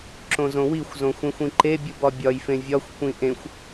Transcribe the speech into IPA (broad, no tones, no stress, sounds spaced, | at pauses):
ǁ õ z õ w i xʷ z õ xʷ ẽ xʷ ĩ ǃ e bʲ u b ɒ bʲ ɒ j f ẽ vʲ ɒ xʷ kʷ ĩ ʔ ẽ xʷ